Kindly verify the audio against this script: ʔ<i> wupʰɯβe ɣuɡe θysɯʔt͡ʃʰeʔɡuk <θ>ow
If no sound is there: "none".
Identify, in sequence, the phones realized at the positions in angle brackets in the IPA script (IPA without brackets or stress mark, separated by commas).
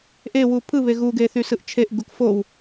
e, f